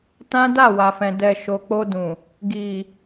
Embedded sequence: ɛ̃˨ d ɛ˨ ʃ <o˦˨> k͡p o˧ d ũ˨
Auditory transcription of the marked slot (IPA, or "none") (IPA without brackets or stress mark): o˨